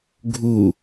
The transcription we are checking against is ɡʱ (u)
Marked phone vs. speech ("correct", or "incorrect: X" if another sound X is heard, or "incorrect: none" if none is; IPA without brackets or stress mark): correct